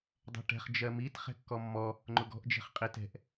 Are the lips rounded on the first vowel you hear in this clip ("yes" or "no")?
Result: no